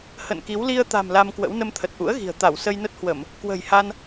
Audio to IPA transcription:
h ə̰˧˨ n k i˨˦ w l i˧ ə̯ t̪ a̤˨˩ m l a˧ m k w ə̰˧˥ w n ə˧ m t̪ʰ ə˨˩ t̚ ʔ ṵ˧˥ ə̯ ɣ i̤˨˩ ə̯ t̪ a˧˩ w s ə˧ j n ə˦˥ t̚ h w ə˧˩˨ m | k w ə̤˨˩ j h a˧ n

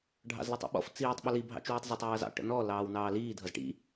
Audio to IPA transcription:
ɖʱ ɑ̰ z l ʌ tˤ ḭ ɓ ɔ̰ f t͡s iː tˤ ɓ ə l i bʱ ɑ̰ t͡ʃ w u tˤ z ʌ tˤ j ʌː z ɑ̰ ʈ ə̰ n ɔ l ɑː w n ɑː l iː dʱ ʌ z ʈ ḭ

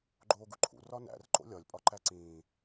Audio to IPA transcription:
ɡ͡ǃ oː ɡ u ǃʰ ṵ r ɒ n æ̰ r ǃ o̰ lʲ ɒ lʲ pʼ ɒ ǃ æ ǀ ĩː

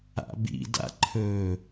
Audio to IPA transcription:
a̰ b ḭ d a̰ ǃʰ ɵ

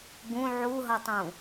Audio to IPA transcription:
ɡ ũ ʕ u ɦ ʌ tˤ ũ

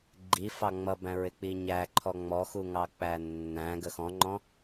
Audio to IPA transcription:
ɡ͡ǃ i f ɑ ŋ͡m ʌ b æ̃ ɹ ɪ k͡p i ɲ æ ǃʰ ɔ ŋ͡m ɔ x u ŋ ɑ k͡p æ nː æ̃ ɡ ə x ɔ̃ ŋ͡ǃ ɔ̃

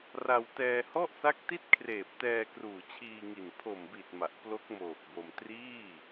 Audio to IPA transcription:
r a˧ w t ɛː˧ h ɔ˥˩ ʔ s a˦˥ k̚ t i˥˩ t̚ kʰ r eː˨˩ p̚ t ɛː˧ k r uː˨˩ t͡ɕʰ iː˧ ŋ i˨˩ n pʰ o˨˩ m b i˨˩ t̚ m a˨˩ ʔ p l o˦˥ k̚ m oː˨˩ k̚ b o˧ m t r iː˥˩

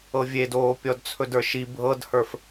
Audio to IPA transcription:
ɤ vʲ e d oː pʲ ɔ d t͡sʰ ɵ d ə˞ ʃ i bʱ ɤ d h ə˞ f

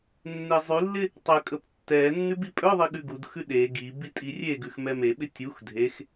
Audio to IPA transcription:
nː e zˤ ʉ lː ɪ | tˤ ə kʼ ə p tː ɛ nː ʉ b i pʼ œ ðˤ i ɠ ʉ ɡ u d x ʉ ɗ e ɡ i b i tʼ i rʲ e ɡ ʉ x m ɛ m e ɓ ɪ tʲ u x dʱ e x

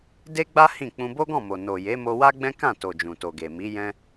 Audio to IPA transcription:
d e˦ ɡ͡b a˦ h ĩ˦˨ k͡p ũ˧ b o˦ ɡ ɔ̃˦˨ m o˨ n o˨ j e˨˦ m o˧ w a˦ ɡ͡b ɛ̃˦ k ã˦˨ t o˨ d͡ʒ ũ˨ t o˨ ɡ e˨ m i˨˦ j ɛ̃˦

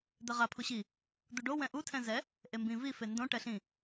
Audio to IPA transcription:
d̪ ɛ ʁ a pʰ u ɕ i | d̪ u ɖ o w ɛ̃ ʔ u tʰ ɛ̃ z ɛ | ʔ e m b ĩ v i f e n d õ ʈ ɛ ɬ ĩ

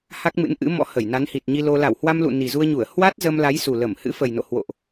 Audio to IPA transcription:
h a˦˥ k̚ m ɨ̰˧˥ n ʔ ɨ̰˧˥ m ɔ̰˧˥ h ə˧˩ j n a˨˦ n h i˨˩ t̚ ɲ i˧ l o˧ l a˧˩ w h w a˧ m l ṵ˧˨ n i˨˩ z u˧ ə̯ ɲ u˧˩ ə̯ h w a˦˥ t̚ z ə˧ m l a˨˦ j s u˨˩ l ə˧˩ m h ɨ̰˧˥ f ə˨˩ j n o̰˧˨ h w o̰˧˨ ʔ

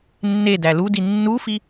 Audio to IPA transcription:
nː e d æ l u d i nː u f i

